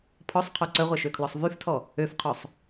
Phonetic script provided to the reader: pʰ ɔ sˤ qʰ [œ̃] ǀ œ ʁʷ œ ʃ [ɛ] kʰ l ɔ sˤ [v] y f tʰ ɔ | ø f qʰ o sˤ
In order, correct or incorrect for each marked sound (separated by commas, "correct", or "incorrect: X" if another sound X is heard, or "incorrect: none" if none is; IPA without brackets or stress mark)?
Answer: incorrect: œ, incorrect: ø, correct